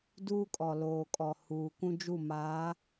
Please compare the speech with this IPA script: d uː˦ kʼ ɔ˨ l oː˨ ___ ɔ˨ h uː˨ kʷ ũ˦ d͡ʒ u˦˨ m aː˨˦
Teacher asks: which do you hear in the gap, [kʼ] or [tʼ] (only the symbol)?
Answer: kʼ